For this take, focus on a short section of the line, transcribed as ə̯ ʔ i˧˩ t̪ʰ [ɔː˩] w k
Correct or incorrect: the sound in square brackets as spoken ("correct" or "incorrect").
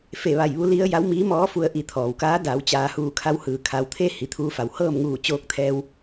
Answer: correct